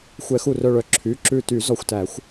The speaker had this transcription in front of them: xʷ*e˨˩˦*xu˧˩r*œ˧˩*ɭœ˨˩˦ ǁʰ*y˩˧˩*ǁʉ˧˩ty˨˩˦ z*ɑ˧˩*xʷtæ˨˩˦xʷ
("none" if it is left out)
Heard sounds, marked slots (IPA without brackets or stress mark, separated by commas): ɛ˨˩˦, œ˧˩, y˩˧˩, ɔ˧˩